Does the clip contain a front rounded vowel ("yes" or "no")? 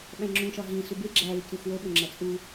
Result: no